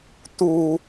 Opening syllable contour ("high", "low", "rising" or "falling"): low